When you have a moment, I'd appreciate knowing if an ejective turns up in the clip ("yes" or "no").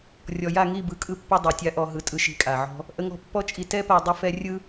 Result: yes